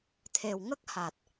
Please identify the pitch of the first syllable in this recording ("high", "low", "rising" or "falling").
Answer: low